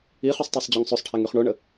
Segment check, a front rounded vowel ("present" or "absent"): present